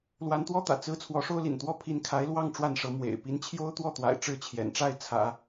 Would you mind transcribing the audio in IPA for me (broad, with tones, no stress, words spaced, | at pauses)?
lwa˧˥nt̪wɔ˥t̪ä̰˨˩ t͡sɹ̩˥ t͡sʰwɔ˧˥ʂo˥ʊ̯lḭ˨˩nt̪wɔ˥ pʰi˧˥nkʰa˧˥ɪ̯lwɑ˥˧ŋ ʈ͡ʂwa˥˩nʂɤ˧˥ mwḛ˨˩ɪ̯ pi˧˥nt͡ɕʰjo˥ʊ̯ t̪wɔ˥˩t̪wa̰˨˩ɪ̯ ʈ͡ʂɻ̩˥˩t͡ɕʰjɛ̰˨˩nʈ͡ʂa˥˩ɪ̯ t͡sʰä̰˨˩˦